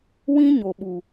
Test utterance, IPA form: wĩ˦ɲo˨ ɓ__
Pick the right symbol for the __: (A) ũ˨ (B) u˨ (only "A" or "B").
B